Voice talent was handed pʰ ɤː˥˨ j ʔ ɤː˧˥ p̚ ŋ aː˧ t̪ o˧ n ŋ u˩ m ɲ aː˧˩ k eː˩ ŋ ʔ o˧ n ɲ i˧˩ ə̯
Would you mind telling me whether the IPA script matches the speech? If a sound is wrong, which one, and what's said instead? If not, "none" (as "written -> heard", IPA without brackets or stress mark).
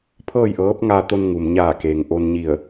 none